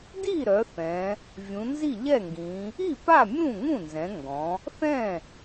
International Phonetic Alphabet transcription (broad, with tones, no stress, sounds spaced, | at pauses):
d i˥˩ ɾ œ˩˧ θ ɛ̃˩˧ | vʲ ũ˩˧ n z i˥˩ ʎ ɛ˥˩ ŋ ɡ ĩ˩˧ | i˥˩ p a˥˩ mʲ ũ˥˩ ŋ ũ˥˩ n z ɛ̃˩˧ ŋ ɡ ɔ̃˩˧ | θ ɛ̃˥˩